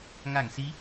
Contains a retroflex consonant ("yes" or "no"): no